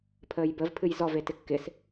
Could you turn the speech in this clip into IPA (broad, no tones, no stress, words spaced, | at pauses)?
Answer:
pʰəːjbəv pʰɨjzɔv etɪkːɪs